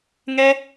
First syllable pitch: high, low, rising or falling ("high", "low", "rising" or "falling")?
high